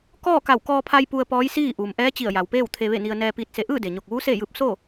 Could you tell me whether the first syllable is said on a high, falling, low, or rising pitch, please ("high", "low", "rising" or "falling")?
falling